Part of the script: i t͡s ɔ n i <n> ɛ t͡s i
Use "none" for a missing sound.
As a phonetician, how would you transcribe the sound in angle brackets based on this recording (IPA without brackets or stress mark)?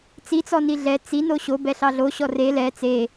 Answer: ɮ